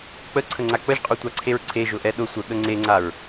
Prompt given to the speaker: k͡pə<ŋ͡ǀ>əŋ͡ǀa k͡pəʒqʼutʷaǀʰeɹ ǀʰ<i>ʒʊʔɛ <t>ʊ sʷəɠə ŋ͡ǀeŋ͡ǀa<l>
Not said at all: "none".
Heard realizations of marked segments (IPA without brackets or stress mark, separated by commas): ǀʰ, e, ɗ, ɹ